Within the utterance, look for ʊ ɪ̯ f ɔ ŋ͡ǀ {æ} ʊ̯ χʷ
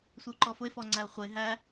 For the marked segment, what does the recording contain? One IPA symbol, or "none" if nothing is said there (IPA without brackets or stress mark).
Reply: æ